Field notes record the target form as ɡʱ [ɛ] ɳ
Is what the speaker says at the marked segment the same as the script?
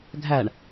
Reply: no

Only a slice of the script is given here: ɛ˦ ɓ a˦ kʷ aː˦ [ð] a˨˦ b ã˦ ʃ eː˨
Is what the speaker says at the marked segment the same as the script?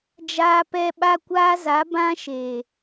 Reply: no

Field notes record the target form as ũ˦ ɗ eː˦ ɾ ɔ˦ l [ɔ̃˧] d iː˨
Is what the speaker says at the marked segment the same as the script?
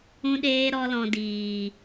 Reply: yes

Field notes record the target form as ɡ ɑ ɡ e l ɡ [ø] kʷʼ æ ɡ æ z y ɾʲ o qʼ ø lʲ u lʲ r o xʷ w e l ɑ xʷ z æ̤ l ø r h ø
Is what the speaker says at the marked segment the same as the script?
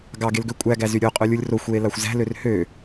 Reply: yes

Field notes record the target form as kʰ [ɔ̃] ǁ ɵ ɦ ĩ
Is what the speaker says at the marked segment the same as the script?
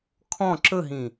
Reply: yes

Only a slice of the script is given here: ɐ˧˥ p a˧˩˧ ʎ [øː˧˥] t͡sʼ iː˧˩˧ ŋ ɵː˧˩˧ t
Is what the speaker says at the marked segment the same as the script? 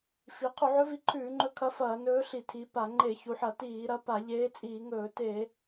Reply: no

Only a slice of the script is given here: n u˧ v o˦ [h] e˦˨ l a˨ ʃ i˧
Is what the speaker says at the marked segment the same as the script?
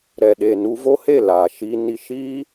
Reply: yes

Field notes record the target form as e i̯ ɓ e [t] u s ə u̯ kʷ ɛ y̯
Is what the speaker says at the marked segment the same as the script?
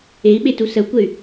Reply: yes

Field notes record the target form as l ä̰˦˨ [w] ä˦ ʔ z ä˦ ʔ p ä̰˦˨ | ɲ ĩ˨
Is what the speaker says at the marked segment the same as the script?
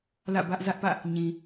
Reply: no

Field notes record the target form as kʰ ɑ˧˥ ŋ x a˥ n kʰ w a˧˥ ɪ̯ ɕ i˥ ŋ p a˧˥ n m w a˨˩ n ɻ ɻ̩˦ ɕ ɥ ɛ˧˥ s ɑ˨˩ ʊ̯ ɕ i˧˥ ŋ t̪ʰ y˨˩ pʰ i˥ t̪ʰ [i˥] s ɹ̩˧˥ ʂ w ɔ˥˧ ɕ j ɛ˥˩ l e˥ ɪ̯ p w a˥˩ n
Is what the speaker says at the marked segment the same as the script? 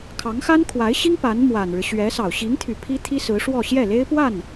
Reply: yes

